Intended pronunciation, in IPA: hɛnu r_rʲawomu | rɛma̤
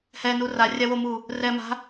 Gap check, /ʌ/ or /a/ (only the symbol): a